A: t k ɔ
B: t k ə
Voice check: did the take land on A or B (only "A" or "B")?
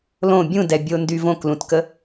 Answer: B